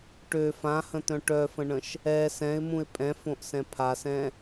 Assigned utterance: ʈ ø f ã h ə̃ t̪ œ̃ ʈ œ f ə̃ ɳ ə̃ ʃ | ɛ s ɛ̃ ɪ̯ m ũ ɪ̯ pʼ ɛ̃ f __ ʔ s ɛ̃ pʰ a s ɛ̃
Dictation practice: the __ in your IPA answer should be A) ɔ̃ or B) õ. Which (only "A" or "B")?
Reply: B